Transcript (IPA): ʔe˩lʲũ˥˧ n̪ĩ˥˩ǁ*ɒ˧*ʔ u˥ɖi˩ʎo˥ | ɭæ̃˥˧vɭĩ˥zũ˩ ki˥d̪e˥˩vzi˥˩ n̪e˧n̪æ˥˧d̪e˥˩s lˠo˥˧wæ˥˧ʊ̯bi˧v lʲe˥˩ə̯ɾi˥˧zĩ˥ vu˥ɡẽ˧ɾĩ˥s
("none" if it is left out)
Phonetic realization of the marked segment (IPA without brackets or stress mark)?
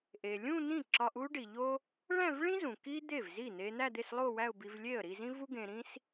ɒ˧